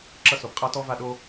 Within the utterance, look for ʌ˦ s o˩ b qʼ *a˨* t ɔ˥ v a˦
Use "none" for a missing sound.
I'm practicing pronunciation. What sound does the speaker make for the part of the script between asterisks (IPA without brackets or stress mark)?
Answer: a˥